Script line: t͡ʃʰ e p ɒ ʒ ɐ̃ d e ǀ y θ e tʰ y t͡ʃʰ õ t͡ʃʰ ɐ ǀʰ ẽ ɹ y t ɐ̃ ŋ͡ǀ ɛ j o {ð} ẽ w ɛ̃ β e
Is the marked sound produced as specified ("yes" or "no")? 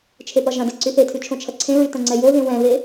yes